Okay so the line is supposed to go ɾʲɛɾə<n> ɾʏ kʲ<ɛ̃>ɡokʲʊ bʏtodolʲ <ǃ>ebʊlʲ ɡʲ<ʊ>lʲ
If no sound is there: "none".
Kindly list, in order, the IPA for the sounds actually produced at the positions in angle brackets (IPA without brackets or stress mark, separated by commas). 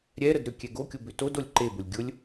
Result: d, ɛ, ǃ, ʊ